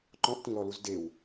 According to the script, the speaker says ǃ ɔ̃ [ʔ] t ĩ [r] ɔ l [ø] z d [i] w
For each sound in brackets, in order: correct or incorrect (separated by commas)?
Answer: correct, incorrect, incorrect, incorrect